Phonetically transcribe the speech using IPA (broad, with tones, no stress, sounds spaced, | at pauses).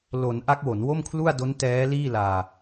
l o˩˦ n ʔ a˦˥ k̚ w o˩˦ n w o˥˩ m kʰ l u˥˩ a̯ d o˦˥ n t ɛː˦˥ l iː˥˩ l aː˧